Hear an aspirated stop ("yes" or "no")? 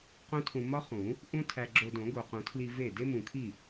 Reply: yes